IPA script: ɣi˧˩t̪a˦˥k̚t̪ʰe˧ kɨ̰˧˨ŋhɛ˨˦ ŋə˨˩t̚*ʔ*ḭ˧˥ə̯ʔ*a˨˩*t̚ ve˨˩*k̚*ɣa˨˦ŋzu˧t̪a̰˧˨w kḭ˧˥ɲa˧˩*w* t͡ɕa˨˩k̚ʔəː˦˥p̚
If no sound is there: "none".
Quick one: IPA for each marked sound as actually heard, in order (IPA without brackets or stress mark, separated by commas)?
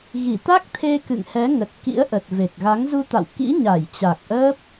k, ə˨˩, k̚, j